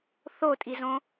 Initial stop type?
ejective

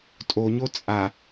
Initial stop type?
ejective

